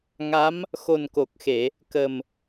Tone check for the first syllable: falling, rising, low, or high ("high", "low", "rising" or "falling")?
rising